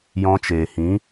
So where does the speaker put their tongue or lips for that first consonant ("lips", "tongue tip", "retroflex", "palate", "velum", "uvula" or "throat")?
palate